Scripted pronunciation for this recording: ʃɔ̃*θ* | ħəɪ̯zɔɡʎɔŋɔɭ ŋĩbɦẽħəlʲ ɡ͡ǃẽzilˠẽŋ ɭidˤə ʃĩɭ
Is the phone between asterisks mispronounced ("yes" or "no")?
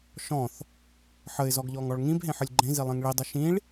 no